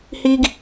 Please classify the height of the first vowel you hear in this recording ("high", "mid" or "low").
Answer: high